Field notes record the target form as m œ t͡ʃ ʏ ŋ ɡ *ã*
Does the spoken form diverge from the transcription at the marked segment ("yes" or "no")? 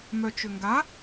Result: yes